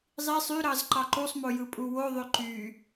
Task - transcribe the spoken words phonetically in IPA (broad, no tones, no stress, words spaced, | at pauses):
zˤi sˤy ɾɑzǃɑǃusˤmo jɯpʼuwoðˤø ǃy